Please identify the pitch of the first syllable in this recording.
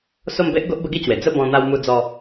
falling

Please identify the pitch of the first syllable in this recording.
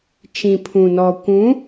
low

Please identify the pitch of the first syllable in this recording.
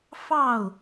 falling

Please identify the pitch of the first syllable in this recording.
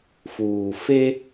low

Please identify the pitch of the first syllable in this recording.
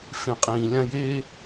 low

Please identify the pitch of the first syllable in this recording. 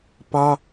high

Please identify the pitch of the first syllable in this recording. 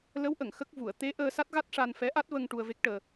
rising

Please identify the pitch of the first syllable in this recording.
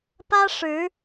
high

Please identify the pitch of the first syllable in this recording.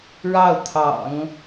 falling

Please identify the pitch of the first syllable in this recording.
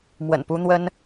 low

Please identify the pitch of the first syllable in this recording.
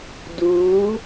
rising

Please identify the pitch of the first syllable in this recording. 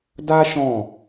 high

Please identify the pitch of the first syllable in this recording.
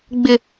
high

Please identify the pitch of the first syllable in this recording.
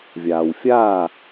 low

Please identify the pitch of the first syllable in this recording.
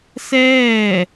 falling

